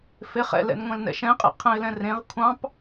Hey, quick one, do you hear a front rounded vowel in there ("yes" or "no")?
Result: no